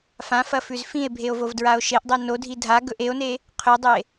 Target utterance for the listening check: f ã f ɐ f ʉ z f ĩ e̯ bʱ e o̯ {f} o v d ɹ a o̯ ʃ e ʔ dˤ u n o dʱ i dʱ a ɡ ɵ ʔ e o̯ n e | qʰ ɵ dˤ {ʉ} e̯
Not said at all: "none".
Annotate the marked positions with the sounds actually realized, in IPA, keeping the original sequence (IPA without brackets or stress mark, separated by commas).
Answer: v, ɨ